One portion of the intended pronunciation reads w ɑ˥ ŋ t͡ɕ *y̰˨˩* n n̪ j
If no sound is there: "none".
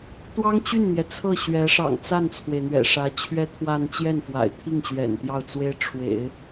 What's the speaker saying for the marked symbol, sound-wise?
y˥˩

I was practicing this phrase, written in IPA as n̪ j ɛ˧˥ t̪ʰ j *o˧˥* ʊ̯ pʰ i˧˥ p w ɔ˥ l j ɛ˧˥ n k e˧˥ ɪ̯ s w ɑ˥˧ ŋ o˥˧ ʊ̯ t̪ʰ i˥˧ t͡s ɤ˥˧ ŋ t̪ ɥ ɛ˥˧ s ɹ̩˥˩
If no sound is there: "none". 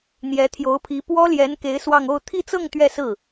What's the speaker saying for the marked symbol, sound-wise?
o˧˥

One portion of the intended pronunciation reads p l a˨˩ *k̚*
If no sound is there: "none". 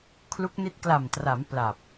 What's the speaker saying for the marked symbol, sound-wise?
p̚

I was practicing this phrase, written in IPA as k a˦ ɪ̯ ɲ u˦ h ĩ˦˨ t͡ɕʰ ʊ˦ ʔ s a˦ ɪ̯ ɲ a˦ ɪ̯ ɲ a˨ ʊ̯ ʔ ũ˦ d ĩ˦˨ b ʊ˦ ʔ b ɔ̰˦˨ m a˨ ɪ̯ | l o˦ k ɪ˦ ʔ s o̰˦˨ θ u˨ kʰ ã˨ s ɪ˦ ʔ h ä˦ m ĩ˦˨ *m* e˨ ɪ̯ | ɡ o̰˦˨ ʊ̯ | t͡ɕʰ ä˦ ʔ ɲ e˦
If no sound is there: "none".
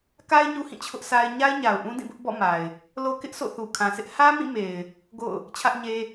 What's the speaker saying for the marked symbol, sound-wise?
m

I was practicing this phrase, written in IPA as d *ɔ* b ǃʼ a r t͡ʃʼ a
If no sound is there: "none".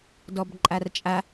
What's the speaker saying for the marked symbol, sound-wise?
ɔ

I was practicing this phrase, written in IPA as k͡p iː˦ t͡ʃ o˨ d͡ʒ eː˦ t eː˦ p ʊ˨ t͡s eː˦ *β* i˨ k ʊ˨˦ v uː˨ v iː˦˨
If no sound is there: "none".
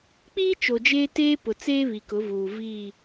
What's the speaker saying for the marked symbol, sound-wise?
β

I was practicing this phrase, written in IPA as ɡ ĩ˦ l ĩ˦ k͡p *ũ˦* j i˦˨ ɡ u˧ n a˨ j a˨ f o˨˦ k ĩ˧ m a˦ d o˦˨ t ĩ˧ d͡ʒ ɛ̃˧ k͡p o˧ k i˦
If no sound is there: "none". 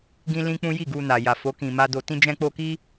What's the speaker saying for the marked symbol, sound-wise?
ũ˦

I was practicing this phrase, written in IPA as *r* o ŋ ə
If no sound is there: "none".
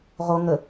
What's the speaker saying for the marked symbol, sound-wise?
ʁ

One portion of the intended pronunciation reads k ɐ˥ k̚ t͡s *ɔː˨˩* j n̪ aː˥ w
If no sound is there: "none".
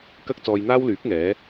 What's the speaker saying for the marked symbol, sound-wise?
ɔː˧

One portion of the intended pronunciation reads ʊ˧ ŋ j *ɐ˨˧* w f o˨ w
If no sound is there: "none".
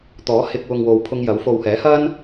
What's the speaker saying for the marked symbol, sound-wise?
ɐ˨˥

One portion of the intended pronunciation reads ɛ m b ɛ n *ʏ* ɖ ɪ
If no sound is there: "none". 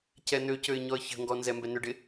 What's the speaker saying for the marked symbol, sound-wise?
ʏ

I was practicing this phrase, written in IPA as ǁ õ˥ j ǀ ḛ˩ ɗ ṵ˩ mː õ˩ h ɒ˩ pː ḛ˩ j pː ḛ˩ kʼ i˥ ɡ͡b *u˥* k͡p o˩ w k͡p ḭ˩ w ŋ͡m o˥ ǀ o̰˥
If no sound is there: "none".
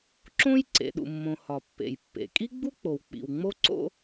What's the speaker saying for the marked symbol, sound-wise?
u˥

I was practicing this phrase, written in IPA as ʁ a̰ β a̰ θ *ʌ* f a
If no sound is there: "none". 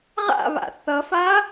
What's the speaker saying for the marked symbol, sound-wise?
ʌ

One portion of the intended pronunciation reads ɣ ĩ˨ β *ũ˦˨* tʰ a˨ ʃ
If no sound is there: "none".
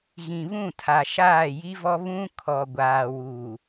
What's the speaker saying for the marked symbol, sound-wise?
ũ˦˨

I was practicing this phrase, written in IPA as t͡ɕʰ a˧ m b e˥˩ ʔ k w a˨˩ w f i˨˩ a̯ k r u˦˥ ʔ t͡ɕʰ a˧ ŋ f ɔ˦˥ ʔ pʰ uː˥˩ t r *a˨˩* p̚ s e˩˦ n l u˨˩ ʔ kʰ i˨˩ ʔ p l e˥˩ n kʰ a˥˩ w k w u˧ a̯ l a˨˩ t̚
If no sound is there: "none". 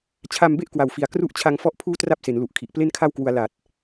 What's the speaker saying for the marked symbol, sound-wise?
a˥˩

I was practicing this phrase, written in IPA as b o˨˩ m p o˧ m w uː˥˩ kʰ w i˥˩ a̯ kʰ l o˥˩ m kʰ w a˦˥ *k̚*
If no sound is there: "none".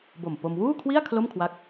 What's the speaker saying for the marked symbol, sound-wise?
k̚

